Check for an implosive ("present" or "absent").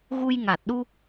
present